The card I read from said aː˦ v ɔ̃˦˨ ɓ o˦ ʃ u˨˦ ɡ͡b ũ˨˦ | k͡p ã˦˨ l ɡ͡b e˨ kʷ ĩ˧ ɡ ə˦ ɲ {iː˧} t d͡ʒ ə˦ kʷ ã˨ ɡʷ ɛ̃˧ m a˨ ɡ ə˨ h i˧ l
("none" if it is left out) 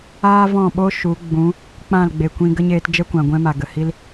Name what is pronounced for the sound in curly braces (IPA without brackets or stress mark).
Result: eː˧